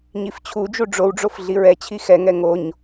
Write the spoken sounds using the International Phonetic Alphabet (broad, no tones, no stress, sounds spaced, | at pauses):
ɲ i f t͡ɕʰ u d͡ʒ u ɖ͡ʐ o w ɖ͡ʐ o f ɮ i ɹ ɛ t͡ɕʰ i x ɛ ŋ ɛ ŋ o ɲ